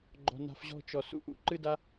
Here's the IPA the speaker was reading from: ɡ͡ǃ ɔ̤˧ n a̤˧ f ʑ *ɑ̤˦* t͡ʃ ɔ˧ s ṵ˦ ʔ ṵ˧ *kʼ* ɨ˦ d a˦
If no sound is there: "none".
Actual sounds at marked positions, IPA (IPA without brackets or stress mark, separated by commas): ɔ̤˦, ǃ